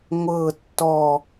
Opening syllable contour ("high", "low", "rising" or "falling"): falling